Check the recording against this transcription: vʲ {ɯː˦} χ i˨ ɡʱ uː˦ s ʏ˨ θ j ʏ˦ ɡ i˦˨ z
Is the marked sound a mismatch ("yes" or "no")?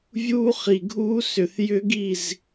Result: yes